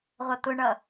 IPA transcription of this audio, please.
ʁʷ ʌ t̪ ʊ ɳ ʌ

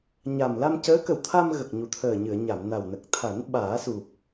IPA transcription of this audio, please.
ɲ a˨˩ m l a˧ m c əː˧˥ k ə˨˩ w t̪ʰ a˧ m ɣ ə˨˩ k̚ ɲ u˨˩ t̪ʰ əː˨˩ ɲ ɨ˨˩˨ ə̯ ɲ a˨˩˨ m n a˨˩ w n ə˨˩ k̚ t̪ʰ a˨˩˦ n ɓ aː˨˩˦ s u˨˩ p̚

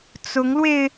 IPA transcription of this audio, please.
t͡s ʊ˧˥ ŋ l w e˧ ɪ̯

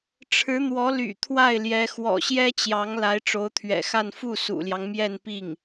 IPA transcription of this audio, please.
ʈ͡ʂʰ ɻ̩˧˥ n̪ w ɔ˧˥ l y̰˨˩ t̪ʰ w a˥˩ ɪ̯ l j ɛ˧˥ x w ɔ̰˨˩ ɕ j ɛ˥ t͡ɕ j ɑ˧˥ ŋ l a˧˥ ɪ̯ ʈ͡ʂ o˧˥ ʊ̯ t̪ʰ ɥ ɛ̰˨˩ x a˥˧ n f u˥˩ s ṵ˨˩ l j ɑ˦ ŋ m j ɛ˥˧ n p i˥˩ ŋ

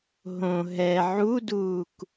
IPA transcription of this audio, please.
ɦ õ ɦ ɛ ʕ u d uː k

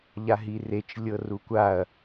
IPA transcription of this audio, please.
ʎ a ɦ i r e t͡ʃ lʲ ɤ r u kʷ a ɐ̯

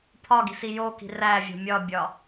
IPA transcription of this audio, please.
pʰ ɒ ɡ i̤ s i j o k i̤ r æ vʲ o̤ mʲ ɒ bʲ ɒ

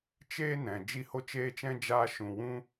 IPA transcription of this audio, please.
t͡ʃ eː˦ n ɛ̃˨ d͡ʒ i˦ h o˦ t͡ʃ eː˦ t͡ʃ ɛ̃˦ d͡ʒ aː˧ ʃ ũ˨ w ũ˦

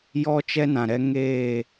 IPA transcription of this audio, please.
j ɔ˦ t͡ʃ ɛ˦ n ã˨ ɾ ɛ˧ ŋ eː˦˨

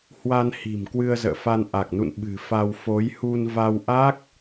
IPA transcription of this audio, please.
h w a˧ n h i̤˨˩ m k w ɨ˧ ə̯ z ə̰ː˧˨ f a˧ n ʔ a˨˩ k̚ n ṵ˧˨ n ɓ ɨ̤˨˩ f a˧ w f o˨˦ j h u˧ n v a˧ w ʔ a˦˥ k̚

